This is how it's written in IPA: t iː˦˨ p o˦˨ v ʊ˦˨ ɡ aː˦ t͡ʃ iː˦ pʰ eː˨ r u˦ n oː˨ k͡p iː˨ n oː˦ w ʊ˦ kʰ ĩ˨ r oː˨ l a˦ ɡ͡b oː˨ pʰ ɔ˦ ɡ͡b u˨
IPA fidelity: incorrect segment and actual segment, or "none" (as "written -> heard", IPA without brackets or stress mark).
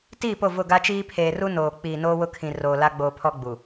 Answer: aː˦ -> a˦